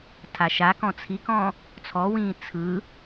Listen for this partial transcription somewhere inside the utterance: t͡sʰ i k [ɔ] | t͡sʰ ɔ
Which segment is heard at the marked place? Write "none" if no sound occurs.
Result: ɔ̃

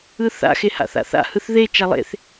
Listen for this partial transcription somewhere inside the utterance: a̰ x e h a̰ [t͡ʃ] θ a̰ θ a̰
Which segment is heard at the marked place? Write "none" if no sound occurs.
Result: none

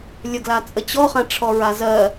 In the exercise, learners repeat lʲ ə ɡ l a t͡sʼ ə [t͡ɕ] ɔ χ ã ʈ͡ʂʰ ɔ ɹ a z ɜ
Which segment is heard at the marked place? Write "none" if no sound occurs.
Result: t͡ɕ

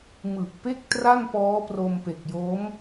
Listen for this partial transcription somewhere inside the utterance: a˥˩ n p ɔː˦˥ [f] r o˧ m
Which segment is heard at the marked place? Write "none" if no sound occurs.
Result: p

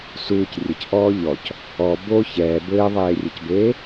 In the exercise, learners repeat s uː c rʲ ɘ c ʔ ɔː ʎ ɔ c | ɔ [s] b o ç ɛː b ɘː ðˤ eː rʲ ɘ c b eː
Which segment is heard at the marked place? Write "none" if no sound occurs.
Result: none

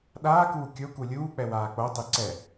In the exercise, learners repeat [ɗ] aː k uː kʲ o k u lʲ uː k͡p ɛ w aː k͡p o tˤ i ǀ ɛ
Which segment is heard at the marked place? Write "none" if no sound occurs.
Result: ɗ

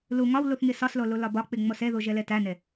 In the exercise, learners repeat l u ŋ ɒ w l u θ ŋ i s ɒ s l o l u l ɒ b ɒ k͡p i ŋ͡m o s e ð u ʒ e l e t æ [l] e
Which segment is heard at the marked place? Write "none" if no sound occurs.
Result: n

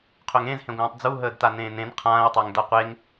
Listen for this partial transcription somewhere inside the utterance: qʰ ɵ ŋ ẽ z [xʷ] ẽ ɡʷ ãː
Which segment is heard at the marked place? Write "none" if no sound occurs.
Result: h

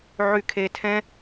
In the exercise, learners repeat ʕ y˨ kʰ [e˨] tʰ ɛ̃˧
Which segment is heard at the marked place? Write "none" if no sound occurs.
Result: e˨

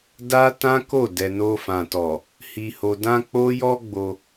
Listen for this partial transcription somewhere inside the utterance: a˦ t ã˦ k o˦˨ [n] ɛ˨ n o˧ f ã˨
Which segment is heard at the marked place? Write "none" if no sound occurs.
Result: d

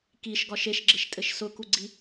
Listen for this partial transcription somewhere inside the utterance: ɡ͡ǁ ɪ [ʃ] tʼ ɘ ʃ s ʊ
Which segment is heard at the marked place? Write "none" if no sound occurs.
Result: ʃ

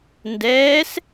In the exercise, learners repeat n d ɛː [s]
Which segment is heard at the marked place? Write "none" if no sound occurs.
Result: s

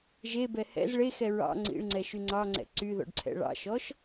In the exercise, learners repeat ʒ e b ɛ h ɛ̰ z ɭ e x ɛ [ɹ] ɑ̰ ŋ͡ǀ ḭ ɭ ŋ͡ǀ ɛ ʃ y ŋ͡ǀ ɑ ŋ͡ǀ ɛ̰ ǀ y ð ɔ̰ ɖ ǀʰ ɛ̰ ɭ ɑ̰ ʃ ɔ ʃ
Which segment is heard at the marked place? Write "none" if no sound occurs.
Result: ɹ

